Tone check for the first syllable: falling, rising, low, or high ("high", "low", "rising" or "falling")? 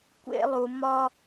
high